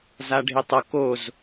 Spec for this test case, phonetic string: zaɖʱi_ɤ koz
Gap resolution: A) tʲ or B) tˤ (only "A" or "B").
B